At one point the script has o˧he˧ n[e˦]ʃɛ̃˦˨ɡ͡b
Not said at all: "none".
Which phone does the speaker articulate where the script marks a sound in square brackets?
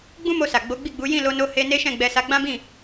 e˦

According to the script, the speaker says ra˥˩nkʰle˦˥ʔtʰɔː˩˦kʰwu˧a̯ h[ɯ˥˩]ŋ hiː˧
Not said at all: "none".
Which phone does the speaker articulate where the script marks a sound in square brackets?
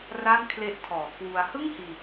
ɯ˥˩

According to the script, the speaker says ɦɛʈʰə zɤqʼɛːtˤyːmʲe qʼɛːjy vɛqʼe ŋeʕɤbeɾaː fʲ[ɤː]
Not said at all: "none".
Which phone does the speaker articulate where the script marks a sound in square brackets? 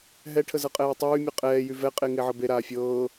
ɤː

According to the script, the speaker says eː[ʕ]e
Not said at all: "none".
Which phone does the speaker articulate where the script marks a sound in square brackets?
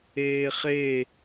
χ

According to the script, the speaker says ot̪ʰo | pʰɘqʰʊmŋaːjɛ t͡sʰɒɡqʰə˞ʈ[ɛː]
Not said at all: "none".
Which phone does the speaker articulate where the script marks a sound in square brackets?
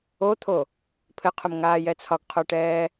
ɛː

